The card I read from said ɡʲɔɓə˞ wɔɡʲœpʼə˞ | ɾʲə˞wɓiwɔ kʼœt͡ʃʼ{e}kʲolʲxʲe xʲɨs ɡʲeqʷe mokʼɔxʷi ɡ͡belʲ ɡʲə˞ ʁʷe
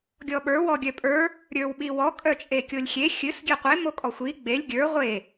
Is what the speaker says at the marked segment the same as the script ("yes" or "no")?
yes